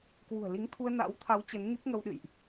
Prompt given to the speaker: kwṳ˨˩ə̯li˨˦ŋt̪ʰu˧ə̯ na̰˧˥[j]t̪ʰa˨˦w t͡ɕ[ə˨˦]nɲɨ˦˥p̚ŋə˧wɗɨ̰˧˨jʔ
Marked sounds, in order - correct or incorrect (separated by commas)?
incorrect, correct